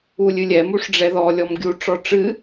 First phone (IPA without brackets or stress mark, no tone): u